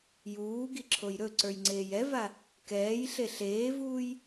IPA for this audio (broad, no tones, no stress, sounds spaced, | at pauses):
j uː ɡ i ǁʰ o j ɾ ɵ ǀ ə˞ j ŋ͡ǀ eː j ɛ v a | k ɛː j ɬ e ɬ eː v uː j